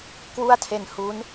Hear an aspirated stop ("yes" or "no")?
yes